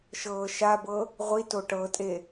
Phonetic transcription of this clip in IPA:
ʃ ɤː ʃ a b ɤ | ʁʷ i t o ʈ ɤ tʼ e

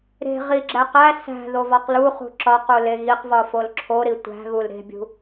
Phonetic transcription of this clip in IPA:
ɾ e̤ ʁ i ɡ͡ǁ æ q æ s æ̤ ð o v ɒ q l u χ ṳ ǁ ɒ q u l e ɣ i q v ɒ f o l ǁʰ o ɾ i tʷ æ̤ ɣ u l ɾ e̤ bʲ ṳ

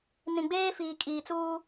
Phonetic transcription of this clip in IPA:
n ĩ˨ ɡ͡b eː˦ f iː˨ kʼ iː˨ t͡s uː˦

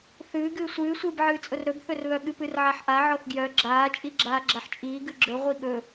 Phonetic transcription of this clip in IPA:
θ ɨː ɡ ɨː sʷ ɨː sʷ ɨː b ʕ ɨː t͡sʼ ʊ r ɾ ɵ b θ ɵ r β œ ɠ ɨ p ɨ r ʕ a ħ ʔ a ʕ ɔ θ ɡ j œ ɡ͡ǁ aː t͡ʃʼ i ɡ͡ǁ aː ɡ͡ǁ a ħ t͡ʃʼ iː ɡ ɨ ɡ͡ǁ ɵ ʁʷ i ɠ ɵ

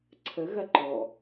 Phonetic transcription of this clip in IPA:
ǀʰ ə ɣ ɐ ǃ ɔ

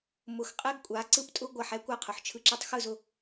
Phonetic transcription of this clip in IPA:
m ʊ˨ x qʼ ɛ˦ ɡ kʷʼ a˨˦ ǀ ɯ˦ p tʼ ʊ˦ ɡʷ ɐ˦˨ ħ ɛ˦ kʷ a˦ qʰ ʊ˨ ħ t͡ʃʰ ɯ˦ ǁ ɯ˦ tˤ x ɯ˦˨ z ʊ˨

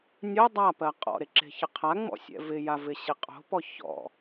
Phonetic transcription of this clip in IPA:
nʲ o dˤ a p ɜ qʼ ɔ̰ ɾ e ǁ e̤ ç ɪ qʰ a ŋ͡m ɔ̰ sʲ ɛ̰ v ɪ j a v ɪ ɕ ɪ qʼ o̤ p ɔ ç ɔ̰

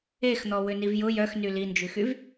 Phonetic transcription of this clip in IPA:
e x n̪ ɔ w ʏ n i v j ʊ j œ x n y l i n d͡ʒ y x y v

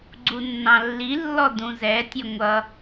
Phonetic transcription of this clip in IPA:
ɡ͡ǀ u nː ɑ̃ lː i lː ɔ d ũ z ɛ tʲ ʌ ŋʷ ʌ

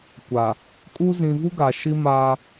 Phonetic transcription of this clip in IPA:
kʷ a˨ | kʼ u˦ z ĩ˨ v u˦ ɡ a˨ ʃ i˦ m aː˦

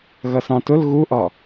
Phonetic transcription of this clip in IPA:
ɣ ʌ s ɑ̃ t ʊ l ɣ u ʔ ɒ

